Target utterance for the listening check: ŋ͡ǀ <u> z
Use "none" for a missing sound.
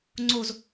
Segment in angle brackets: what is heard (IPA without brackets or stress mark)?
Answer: o